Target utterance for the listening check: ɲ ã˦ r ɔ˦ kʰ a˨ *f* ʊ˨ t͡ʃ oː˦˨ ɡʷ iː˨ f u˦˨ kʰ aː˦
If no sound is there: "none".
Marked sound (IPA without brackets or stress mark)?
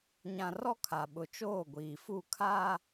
ɓ